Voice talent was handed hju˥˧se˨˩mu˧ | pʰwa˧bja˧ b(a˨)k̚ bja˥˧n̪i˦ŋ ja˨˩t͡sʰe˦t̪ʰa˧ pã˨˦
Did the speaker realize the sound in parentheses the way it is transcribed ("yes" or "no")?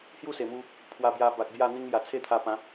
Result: yes